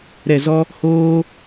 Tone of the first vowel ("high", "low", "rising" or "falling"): low